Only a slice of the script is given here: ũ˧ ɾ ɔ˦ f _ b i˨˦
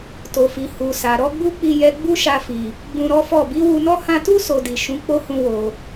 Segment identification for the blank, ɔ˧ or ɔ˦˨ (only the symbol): ɔ˦˨